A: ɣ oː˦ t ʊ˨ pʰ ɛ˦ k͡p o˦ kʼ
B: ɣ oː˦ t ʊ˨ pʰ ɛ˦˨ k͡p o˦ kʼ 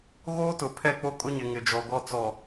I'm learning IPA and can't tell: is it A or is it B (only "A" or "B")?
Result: B